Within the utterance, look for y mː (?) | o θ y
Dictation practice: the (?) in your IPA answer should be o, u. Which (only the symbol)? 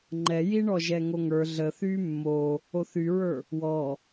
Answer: o